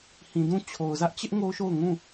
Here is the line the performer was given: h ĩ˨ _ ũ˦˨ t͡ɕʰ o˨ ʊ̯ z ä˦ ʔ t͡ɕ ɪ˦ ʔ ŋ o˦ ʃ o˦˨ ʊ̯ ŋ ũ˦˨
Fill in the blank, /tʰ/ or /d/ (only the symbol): d